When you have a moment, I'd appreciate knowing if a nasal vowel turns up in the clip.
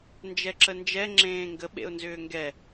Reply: yes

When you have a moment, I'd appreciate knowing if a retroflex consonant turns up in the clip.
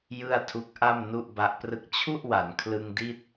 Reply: no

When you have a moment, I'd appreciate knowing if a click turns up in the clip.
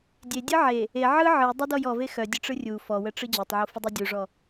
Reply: no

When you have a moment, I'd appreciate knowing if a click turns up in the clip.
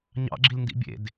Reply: yes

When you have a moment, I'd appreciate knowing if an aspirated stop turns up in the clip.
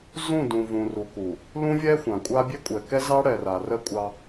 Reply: no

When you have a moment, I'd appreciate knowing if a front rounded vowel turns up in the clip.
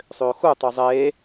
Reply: yes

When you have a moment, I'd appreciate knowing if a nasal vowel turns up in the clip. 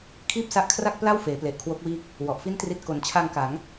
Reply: no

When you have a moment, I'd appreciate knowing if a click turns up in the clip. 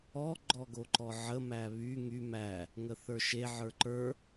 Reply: yes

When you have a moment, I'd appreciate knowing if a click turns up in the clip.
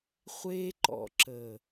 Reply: yes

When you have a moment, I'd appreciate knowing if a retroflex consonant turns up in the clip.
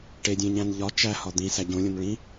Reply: yes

